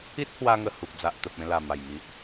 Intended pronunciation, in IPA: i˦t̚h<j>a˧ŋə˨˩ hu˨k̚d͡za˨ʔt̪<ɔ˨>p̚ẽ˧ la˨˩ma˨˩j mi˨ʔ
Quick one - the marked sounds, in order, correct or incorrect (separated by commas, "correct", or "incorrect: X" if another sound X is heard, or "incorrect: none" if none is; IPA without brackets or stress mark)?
incorrect: w, incorrect: ə˨